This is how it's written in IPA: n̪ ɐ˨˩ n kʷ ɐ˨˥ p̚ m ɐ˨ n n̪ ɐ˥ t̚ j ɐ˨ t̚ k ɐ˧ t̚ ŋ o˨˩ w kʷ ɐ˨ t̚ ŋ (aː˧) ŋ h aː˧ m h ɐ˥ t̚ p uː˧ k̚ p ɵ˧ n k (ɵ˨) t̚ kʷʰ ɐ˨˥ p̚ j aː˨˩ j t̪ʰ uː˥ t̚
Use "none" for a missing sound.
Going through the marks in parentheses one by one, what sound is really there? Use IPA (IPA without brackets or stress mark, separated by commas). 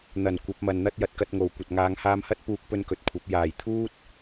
aː˨˧, ɵ˨